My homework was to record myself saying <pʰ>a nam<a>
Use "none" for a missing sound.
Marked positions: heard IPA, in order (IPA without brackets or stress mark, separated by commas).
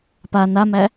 p, æ